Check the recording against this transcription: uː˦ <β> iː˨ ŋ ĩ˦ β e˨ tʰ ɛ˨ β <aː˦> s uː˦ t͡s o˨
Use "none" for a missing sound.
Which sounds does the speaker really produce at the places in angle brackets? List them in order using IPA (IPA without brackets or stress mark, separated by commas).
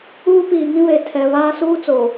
p, aː˦